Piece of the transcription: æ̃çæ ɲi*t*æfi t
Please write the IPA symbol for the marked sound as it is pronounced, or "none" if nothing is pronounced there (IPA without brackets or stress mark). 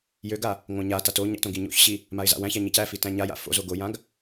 c